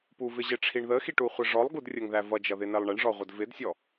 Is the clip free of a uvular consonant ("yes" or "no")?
no